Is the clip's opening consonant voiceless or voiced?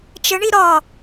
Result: voiceless